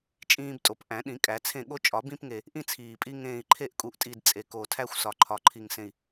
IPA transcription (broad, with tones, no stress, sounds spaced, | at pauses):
t͡ʃʼ ĩː˦ b tʼ o˨˩˦ p ʔ æ̃˨˩˦ ɗ ĩ˨˩˦ kʼ æ˨˩˦ t͡sʰ ẽ˦˨ ɠ o˦ t͡ʃʼ ɒ˨˩˦ b ĩ˦ p ŋ e˨˩ | ʔ ĩ˦ t͡sʰ iː˨˩ pʼ i˦ ŋ ẽː˨˩ i̯ ǃʰ e˦˨ ʔ kʼ u˨˩ ʔ tʼ i˨˩ d t͡sʼ e˨˩ k o˨˩ tʰ æ˦ xʷ s ɒ˨˩ ǃʰ ɒ˨˩ ǃʰ i˨˩ ŋ s ẽ˨˩ i̯